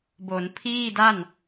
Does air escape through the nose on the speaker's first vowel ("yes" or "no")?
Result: no